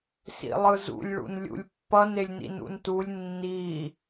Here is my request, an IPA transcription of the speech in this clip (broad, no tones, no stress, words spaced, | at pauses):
sḭlˠɯzṵlʲ ɭṵnlʲṵlʲpːʌn elʲnḭnṵntulʲ nːi